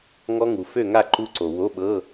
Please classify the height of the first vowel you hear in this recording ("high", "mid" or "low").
mid